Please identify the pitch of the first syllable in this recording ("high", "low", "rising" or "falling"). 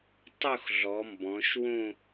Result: falling